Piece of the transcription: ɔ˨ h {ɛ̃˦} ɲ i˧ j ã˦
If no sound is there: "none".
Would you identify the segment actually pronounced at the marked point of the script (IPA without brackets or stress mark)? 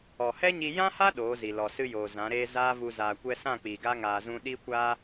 ɛ˦